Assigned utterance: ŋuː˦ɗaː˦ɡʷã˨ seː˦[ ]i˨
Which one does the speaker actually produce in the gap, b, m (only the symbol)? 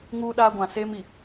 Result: m